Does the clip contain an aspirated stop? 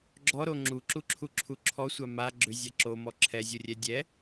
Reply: yes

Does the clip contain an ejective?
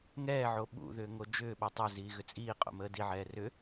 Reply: yes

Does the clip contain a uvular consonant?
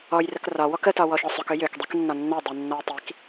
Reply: no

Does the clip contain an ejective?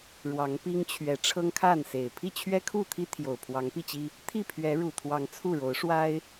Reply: no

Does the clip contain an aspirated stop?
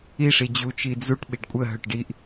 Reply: no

